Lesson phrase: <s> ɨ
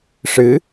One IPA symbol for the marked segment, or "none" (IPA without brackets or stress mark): ʂ